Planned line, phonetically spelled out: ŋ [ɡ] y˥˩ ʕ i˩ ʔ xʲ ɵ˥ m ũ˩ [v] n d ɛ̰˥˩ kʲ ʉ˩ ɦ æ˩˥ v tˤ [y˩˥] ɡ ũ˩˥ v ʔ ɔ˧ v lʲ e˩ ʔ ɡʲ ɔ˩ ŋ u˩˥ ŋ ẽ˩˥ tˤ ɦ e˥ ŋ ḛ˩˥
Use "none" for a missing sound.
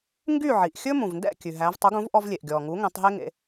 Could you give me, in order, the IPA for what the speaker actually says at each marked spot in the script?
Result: ɡ, v, u˩˥

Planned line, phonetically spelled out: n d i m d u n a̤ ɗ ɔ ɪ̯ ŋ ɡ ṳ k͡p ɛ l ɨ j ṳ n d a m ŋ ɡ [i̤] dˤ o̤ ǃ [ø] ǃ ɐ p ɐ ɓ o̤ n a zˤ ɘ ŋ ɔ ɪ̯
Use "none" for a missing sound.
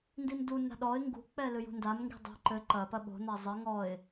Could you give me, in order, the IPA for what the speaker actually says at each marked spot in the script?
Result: i̤, ɘ

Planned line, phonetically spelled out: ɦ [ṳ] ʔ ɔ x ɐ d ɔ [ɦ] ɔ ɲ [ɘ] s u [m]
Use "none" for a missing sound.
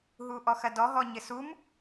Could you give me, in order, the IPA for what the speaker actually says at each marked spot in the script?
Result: u, ɦ, ɘ, m

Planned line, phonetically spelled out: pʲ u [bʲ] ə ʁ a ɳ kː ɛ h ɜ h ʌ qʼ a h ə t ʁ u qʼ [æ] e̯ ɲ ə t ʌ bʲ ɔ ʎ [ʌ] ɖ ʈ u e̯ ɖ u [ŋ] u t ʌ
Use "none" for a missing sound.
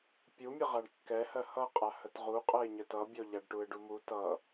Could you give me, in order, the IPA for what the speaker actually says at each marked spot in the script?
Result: mʲ, ɜ, a, m

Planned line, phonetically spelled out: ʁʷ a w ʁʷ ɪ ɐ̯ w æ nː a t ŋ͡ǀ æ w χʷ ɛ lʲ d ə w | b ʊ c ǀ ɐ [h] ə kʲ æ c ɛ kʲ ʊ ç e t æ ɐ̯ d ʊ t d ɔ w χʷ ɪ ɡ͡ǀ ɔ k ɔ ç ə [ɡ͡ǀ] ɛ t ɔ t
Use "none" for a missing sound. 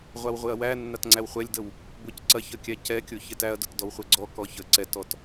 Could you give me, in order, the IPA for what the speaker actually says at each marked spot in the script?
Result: ç, ǀ

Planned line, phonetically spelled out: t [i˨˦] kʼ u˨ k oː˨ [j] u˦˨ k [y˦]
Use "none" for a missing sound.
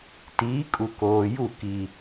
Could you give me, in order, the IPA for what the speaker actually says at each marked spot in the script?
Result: iː˨˦, j, i˦

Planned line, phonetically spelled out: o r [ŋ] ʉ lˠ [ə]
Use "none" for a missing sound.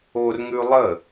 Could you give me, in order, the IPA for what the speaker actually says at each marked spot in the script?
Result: ŋ, ə

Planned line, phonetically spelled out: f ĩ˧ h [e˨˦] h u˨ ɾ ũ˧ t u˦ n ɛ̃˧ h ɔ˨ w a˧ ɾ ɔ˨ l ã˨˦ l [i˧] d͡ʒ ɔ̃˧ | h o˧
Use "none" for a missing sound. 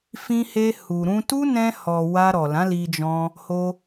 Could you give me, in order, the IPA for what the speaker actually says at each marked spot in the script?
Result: e˧, i˧

